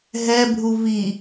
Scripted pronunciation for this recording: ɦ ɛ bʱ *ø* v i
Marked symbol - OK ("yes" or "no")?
no